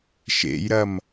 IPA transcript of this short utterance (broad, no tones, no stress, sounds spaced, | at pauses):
ʃ ḛ j ɾ ɐ m